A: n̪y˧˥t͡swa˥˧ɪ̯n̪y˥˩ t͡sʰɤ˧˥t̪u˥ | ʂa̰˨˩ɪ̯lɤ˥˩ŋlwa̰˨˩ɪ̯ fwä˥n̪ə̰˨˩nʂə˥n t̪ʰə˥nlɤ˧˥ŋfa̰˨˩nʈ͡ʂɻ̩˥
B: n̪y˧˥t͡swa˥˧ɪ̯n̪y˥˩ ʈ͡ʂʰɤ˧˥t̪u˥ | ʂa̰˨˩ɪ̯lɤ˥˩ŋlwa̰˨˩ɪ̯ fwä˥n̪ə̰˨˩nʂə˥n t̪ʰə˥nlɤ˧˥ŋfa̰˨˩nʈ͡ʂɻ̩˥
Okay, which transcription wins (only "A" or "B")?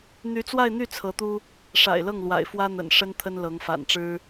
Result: A